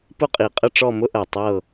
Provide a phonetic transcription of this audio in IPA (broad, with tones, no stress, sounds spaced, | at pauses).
p ʊ˥˧ qʼ i˧˩ qʼ ə˥˧ ʈ͡ʂ ɔ˥˧ m ʊ˥ ʔ ɜ˧˩ tˤ ɤ˥˧